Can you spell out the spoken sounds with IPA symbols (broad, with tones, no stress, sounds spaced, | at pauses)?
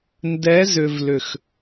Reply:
n d ɛ˨˦ z ʏ˨ v l ʏ˨ x